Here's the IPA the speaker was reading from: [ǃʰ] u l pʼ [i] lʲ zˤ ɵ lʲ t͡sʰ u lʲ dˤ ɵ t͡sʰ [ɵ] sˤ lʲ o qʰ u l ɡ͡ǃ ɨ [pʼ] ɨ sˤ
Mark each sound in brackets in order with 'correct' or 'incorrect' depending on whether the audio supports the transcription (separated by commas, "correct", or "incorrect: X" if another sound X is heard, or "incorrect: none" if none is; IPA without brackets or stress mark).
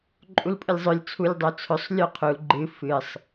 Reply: incorrect: ǃʼ, incorrect: ɨ, correct, incorrect: f